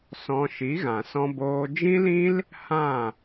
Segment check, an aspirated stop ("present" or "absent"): absent